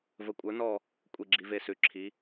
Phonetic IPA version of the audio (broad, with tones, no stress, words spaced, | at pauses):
və˧˥kʷʼə˞˧˥nɔ˥˧ | kʷʼi˥˧ɡ͡ǁi˧˥ve˥˧sʉ˧˥ ǁʰi˧˥